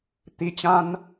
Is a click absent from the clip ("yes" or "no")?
yes